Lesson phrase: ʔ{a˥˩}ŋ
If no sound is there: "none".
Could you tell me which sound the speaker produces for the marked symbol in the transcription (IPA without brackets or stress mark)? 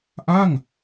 a˥˩